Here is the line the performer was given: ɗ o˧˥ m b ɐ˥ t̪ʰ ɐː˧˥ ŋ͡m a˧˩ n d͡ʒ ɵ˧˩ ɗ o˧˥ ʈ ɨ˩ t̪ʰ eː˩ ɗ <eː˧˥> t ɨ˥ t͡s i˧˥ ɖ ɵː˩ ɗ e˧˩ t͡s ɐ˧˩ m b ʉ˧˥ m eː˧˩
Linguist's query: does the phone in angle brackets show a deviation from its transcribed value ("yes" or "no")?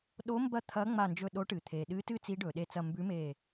yes